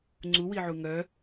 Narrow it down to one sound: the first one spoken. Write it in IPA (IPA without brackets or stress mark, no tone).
ŋ͡ǀ